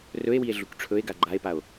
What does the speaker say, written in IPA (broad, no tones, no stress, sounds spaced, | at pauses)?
r ɵ e̯ w i e̯ ɮ u k ʈ͡ʂʰ ɵ e̯ ɡ a ɡ͡ǃ a e̯ p a o̯